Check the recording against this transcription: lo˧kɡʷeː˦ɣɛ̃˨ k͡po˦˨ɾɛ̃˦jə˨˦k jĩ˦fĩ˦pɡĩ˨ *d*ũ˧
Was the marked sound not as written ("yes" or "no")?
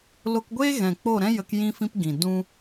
no